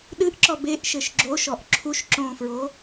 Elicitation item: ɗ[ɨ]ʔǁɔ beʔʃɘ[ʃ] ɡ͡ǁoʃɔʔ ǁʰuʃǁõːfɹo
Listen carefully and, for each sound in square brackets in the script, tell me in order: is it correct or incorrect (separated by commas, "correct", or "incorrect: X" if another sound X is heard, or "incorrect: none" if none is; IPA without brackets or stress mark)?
correct, correct